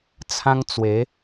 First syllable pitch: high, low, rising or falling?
high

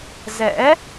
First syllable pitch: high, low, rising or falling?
rising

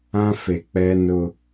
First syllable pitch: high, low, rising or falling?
high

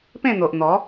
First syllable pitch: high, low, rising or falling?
falling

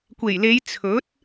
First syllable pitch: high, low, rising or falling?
low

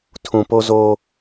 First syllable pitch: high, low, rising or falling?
low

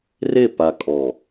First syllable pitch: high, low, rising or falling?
falling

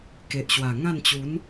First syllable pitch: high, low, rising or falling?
low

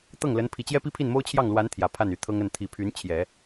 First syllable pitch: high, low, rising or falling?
falling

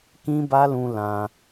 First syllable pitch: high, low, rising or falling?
high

